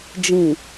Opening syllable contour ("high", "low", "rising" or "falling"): low